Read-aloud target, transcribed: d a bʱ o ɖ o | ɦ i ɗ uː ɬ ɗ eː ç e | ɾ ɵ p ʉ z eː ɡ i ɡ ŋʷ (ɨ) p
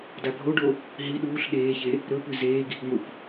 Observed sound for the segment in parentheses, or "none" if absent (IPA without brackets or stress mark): ɨ